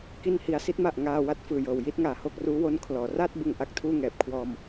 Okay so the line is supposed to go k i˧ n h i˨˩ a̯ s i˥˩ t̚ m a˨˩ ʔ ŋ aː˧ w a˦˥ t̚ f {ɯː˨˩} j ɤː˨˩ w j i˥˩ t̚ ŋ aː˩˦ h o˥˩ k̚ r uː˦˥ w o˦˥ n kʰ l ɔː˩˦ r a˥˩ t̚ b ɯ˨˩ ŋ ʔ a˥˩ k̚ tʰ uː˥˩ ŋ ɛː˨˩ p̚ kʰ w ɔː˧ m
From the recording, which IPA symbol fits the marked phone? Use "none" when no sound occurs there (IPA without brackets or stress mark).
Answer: ɯː˨˩